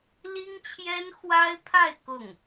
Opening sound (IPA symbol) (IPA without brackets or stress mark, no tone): l